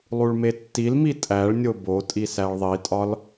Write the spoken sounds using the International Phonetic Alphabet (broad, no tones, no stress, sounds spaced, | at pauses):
lˠ u ɭ m e tː i l m i tʼ æ ɭ nʲ o b o tʼ i s æ ɭ ðˤ i tʼ ɒ l